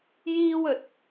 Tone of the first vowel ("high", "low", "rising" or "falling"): high